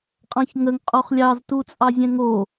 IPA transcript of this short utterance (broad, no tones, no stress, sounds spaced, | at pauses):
qʼ ɑ̃ ç ŋ ə ŋ qʼ o χ lʲ ɑ z t u t͡sʼ ɑ zʲ ɛ̃ ŋ o